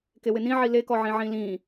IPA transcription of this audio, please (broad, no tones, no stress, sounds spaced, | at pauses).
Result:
k e w ɪ n ĩ ʕ i l e k ɔ ʕ ĩ ʕ ĩ l ĩ